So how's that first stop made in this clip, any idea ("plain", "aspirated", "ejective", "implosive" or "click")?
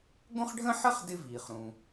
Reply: plain